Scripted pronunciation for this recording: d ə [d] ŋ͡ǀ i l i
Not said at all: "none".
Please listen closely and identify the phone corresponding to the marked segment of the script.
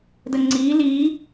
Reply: none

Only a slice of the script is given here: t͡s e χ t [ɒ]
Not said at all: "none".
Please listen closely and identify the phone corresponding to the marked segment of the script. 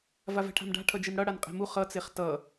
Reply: ʌ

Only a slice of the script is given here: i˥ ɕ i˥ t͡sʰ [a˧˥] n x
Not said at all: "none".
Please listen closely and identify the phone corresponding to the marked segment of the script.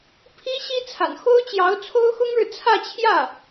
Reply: a̰˨˩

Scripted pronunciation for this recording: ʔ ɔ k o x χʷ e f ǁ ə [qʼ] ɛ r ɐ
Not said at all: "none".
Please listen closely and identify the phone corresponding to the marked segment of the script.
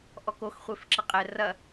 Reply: qʼ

